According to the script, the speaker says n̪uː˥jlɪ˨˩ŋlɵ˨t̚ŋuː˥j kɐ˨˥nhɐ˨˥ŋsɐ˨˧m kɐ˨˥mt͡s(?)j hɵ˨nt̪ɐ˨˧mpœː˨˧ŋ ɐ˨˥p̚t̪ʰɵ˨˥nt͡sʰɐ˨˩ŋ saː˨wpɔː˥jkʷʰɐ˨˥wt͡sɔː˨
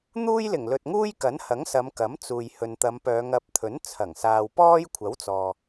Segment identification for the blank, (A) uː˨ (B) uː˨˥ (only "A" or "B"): A